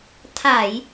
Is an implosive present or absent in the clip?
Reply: absent